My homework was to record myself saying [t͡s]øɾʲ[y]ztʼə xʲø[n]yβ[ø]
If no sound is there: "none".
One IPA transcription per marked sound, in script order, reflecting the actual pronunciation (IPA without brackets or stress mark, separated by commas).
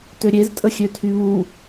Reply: t, e, tʰ, u